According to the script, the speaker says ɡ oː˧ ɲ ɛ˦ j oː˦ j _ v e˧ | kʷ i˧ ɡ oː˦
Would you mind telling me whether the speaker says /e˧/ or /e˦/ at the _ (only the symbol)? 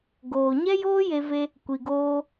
e˧